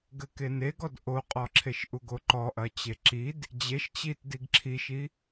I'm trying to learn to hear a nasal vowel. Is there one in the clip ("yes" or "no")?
no